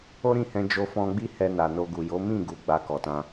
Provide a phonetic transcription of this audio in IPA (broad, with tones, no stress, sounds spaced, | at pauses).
o˦ ɾ ĩ˦˨ h ɛ̃˧ d͡ʒ o˧ f ɔ̃˧ ɡ͡b i˦ h ɛ˧ n a˨ n o˧ ɡ u˨ j o˨˦ m ĩ˦˨ ɡ u˨ ɡ͡b a˧ k ɔ˨ t ã˧